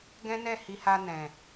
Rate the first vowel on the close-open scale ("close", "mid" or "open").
mid